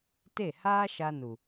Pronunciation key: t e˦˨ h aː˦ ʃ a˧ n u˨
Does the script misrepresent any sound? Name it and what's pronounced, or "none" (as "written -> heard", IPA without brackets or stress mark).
none